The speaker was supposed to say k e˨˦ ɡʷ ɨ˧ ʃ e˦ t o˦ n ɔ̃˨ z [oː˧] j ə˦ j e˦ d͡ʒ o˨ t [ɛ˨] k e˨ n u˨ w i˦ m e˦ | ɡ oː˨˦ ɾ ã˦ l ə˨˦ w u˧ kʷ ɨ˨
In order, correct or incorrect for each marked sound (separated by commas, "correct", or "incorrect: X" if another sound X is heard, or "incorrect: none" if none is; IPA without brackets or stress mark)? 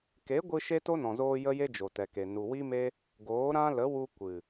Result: correct, correct